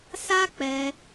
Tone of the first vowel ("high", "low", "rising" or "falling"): high